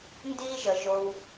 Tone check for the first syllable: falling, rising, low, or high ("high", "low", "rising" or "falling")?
high